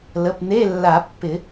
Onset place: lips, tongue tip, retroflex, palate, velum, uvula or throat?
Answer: tongue tip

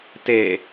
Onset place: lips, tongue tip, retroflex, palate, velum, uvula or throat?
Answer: tongue tip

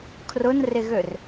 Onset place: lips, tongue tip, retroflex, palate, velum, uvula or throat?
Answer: velum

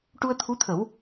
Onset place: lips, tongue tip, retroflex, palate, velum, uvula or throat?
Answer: retroflex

